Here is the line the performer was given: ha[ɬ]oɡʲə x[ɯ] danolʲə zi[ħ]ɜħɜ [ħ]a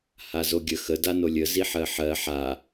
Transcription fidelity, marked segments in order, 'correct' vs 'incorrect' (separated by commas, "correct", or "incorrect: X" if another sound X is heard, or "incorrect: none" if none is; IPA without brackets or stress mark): incorrect: z, incorrect: ə, correct, correct